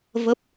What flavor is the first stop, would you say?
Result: plain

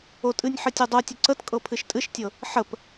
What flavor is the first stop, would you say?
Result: ejective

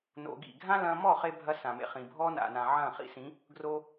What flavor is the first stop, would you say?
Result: plain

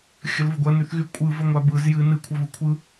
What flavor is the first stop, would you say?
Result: plain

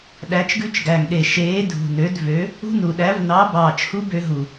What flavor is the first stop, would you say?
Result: implosive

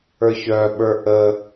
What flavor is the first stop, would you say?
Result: implosive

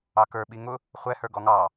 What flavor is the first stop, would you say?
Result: plain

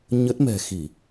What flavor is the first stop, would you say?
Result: plain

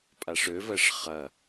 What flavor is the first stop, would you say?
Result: ejective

